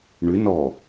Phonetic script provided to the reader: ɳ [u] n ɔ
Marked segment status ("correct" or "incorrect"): incorrect